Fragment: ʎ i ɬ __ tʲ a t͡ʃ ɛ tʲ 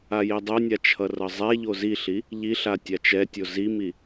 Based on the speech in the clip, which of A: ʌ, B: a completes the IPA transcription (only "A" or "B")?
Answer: B